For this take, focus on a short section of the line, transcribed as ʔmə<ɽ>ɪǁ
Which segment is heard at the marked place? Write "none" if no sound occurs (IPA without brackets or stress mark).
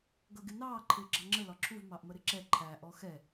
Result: ɾ